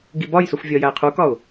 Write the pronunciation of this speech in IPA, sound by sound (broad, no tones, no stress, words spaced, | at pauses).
ɡibɒjsuf vʲɒjæɪ̯qʰukɒʊ̯